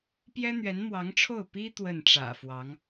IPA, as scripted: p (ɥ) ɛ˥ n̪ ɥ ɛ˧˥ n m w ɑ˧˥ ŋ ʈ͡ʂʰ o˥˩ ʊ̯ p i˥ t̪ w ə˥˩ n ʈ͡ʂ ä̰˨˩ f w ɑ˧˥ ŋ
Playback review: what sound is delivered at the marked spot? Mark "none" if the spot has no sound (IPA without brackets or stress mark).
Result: j